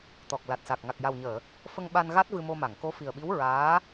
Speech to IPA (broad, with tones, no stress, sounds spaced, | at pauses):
t̪ ɔ˨˩ k̚ l a˨˩ t̚ s a˨˩ k̚ ŋ a˨˩ k̚ j a˨˩ w ɲ əː˨˩˨ | f ə˧ ŋ ɓ a˧ n ɣ a˦˥ t̚ v ɨ˧ m o˧ m a˨˩˨ ŋ k o˧˥ f i˨˩ ə̯ ɓ i˧˥ w ɹ aː˧˥